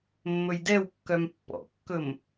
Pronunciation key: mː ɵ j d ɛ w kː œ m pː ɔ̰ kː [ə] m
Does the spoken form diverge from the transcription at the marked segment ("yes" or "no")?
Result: yes